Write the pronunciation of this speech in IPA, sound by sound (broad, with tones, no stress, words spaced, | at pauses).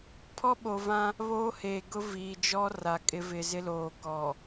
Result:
pʰɔ˦ɓo˨vã˦ | βoː˦heː˨ɡʊ˦ viː˨d͡ʒɔ˦ ra˨kʼɪ˦ vɪ˨zɪ˦loː˨kɔ˨